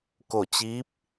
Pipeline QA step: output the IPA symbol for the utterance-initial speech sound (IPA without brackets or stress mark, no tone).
k